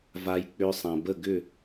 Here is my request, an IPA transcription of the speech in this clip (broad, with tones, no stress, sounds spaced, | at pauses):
v a˧ j k͡p ʏ˧ sˤ ã˩ b ə˥˩ ɡ ʏ˥˩